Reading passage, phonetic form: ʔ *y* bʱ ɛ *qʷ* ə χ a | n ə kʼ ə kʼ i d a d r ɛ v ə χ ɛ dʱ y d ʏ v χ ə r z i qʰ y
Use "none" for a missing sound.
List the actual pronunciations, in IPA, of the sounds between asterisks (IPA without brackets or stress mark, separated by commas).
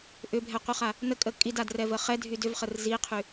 ʏ, qʷ